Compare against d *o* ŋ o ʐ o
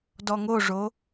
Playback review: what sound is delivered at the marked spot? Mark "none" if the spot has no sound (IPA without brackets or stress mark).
ɔ